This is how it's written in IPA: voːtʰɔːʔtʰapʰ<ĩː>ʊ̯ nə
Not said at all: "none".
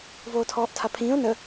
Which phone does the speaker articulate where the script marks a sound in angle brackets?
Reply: ĩː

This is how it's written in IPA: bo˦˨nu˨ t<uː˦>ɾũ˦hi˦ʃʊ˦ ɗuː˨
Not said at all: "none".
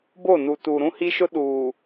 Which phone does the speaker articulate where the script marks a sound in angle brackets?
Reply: uː˨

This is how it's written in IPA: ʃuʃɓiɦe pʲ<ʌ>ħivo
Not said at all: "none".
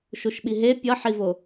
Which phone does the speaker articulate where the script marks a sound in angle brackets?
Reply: ʌ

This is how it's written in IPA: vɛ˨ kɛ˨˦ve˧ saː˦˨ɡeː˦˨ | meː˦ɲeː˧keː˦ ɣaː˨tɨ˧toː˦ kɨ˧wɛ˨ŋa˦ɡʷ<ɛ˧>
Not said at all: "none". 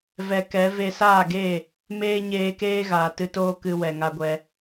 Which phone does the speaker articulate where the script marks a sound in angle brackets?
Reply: ɛ˧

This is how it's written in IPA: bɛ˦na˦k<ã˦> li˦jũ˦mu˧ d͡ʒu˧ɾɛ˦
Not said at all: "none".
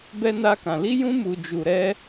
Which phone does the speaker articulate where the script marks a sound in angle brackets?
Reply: ã˧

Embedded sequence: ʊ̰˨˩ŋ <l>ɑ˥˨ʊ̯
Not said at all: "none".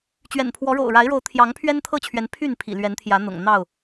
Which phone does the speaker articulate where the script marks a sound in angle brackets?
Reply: n̪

